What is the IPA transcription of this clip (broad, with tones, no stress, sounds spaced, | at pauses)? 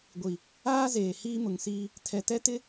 ɡʷ i˨ | aː˦ z eː˨ h iː˦ m ʊ˨ ŋ s iː˦ | tʰ ɛ˨ t ɛ˦ t ɪ˦